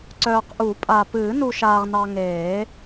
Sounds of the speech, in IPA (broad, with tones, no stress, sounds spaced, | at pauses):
ǀ œː˨ q ʔ u˨˩˦ pʼ a˨ p ɨː˨˩˦ n u˨ ʃ aː˨ ʁ n ɑ˨ ŋ eː˨˩˦